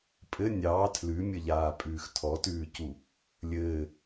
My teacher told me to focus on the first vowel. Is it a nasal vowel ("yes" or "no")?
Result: no